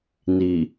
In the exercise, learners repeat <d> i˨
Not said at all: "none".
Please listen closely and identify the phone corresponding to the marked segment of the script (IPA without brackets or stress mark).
n